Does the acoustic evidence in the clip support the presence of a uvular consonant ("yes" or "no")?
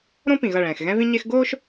no